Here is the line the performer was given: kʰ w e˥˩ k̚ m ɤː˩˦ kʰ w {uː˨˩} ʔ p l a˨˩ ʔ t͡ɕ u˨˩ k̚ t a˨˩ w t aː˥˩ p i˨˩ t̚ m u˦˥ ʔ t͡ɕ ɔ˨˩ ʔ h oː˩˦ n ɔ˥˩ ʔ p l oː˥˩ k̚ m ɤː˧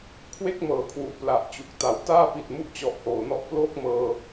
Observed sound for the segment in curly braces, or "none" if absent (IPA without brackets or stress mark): u˨˩